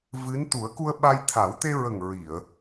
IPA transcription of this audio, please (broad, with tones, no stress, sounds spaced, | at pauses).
v ɨ˧˥ n t̪ u˨˩˦ ə̯ k u˧ ə̯ ɓ a˧ j t̪ʰ a˨˩˦ w t̪ e˧ ɹ ə˨˩ ŋ ɹ i˨˩˨ ə̯